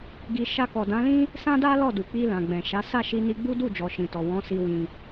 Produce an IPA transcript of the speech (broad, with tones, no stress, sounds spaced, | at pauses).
ɡ i˧ ʃ a˧ k ɔ˨ d ã˨˦ l ĩ˦ | s ã˦ d a˦ l ɔ˦˨ d u˨ k͡p i˧ l ã˨ ɡ͡b ɛ̃˨ ʃ a˨˦ s a˦˨ ʃ i˧ n i˧ ɡ͡b u˦ d u˦˨ d͡ʒ ɔ˨ ʃ ĩ˨ t ɔ˨ w ɔ̃˨˦ s i˧ w ĩ˧